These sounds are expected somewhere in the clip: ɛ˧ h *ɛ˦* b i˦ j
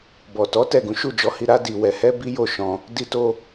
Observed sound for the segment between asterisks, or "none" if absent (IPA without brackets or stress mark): ɛ˦